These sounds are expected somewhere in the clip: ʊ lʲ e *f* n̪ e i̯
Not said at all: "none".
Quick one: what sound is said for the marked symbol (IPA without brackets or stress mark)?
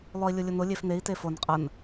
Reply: f